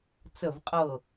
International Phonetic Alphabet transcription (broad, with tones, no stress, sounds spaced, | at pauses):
t͡s ə˥˨ v qʼ ɤ˥˨